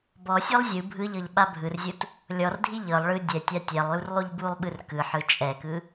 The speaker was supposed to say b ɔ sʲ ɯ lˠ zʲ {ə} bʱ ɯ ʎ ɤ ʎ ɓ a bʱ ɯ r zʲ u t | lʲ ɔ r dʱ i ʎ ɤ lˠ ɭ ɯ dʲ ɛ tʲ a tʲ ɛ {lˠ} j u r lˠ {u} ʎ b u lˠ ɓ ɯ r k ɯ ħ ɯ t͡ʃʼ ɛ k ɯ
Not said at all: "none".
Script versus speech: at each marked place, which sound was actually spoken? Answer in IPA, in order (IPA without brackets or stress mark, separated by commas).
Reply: ɯ, lˠ, u